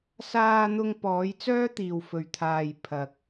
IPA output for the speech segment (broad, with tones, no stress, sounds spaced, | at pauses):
s aː˧ n̪ ʊ˧ ŋ p ɔː˨˧ j t͡s œː˥ t̪ iː˨ w f ɵ˨ ɥ t̪ʰ aː˨ j pʰ ɐ˨ k̚